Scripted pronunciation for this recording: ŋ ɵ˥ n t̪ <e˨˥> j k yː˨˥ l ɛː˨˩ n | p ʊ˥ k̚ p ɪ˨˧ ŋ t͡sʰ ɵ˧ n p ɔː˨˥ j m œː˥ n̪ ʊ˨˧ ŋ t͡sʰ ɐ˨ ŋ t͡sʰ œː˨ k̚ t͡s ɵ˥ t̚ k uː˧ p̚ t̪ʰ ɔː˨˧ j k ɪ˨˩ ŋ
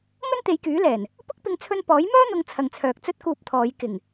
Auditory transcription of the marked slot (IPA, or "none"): e˨˧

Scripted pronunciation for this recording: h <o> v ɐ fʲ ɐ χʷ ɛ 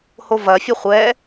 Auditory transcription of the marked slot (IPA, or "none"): o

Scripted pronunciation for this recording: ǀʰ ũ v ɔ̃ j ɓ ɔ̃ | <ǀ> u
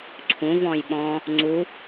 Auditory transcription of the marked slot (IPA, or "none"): ŋ͡ǀ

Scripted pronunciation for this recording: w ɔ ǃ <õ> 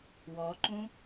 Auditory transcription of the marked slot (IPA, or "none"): ũ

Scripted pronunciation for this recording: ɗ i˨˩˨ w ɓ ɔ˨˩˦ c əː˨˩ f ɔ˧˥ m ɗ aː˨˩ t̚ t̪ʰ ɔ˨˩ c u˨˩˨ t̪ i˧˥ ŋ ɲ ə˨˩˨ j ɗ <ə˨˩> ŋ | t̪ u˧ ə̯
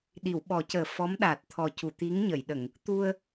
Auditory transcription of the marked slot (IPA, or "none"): ə˨˩˨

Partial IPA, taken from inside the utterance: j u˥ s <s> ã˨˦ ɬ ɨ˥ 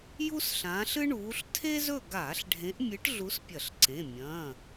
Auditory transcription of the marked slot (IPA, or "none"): ɬ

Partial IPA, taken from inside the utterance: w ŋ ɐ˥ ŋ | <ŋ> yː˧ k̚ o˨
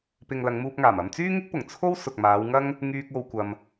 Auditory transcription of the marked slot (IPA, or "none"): ŋ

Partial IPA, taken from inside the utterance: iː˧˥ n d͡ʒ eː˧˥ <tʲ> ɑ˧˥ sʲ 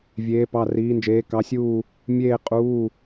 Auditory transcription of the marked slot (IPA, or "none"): k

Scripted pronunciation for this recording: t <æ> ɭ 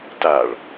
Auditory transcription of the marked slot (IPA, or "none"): a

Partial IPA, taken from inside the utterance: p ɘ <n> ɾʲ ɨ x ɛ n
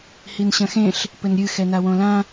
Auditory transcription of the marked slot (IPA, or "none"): n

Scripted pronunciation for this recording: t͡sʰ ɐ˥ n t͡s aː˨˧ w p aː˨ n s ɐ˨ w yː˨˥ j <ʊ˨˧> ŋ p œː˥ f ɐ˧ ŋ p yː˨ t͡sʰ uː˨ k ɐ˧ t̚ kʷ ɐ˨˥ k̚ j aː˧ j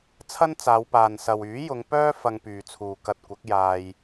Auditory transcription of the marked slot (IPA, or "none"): ʊ˨˧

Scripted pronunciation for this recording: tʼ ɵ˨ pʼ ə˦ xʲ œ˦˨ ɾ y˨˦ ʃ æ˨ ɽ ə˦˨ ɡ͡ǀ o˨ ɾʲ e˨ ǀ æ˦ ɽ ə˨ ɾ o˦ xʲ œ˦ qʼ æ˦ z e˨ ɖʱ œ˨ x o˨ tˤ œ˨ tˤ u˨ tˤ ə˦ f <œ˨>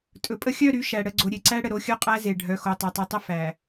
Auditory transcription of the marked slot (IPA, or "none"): æ˨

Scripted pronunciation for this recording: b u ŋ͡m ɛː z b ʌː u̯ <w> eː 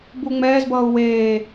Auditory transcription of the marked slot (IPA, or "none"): w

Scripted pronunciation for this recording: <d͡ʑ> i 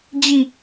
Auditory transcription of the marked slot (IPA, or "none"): d͡ʑ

